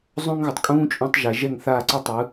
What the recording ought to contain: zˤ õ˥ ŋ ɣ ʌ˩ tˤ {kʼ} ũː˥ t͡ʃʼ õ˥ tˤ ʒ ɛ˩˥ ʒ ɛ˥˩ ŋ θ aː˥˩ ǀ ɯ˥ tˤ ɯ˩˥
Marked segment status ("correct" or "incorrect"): correct